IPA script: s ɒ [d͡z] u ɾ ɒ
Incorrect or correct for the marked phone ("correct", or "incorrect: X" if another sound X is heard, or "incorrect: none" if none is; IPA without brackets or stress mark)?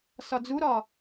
correct